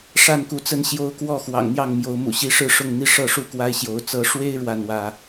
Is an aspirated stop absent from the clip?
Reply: yes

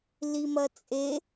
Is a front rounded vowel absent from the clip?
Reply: yes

